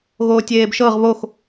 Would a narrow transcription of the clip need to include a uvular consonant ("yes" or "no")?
yes